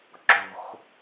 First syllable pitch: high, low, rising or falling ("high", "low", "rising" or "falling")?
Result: low